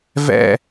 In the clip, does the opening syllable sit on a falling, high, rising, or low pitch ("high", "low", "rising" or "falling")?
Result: falling